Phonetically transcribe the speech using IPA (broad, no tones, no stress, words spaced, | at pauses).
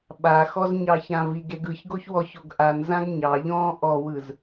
ɓaxɔz ɲɑçãviɡeɡ ɯçɡoç wɔçoɡ ʔanzãɡ ɲɑʎɔ̃ː ʔɔwɯz